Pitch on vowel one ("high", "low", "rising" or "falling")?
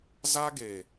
high